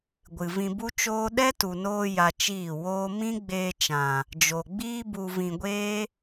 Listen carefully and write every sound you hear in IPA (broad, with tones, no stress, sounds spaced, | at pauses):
ɡʷ ɨ˨ v ĩ˧ b u˦ t͡ʃ oː˦ ɗ ɛ˦ t u˨ n oː˧ j a˧ t͡ʃ iː˦˨ w oː˦ m ĩ˦ ɡ͡b eː˧ t͡ʃ ã˨ | d͡ʒ o˨ ɡ͡b iː˦ b u˧ v ĩ˧ ɡʷ eː˦